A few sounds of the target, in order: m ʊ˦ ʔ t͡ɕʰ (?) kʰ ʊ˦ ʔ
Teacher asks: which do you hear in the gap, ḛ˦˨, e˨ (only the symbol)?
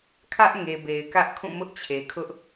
e˨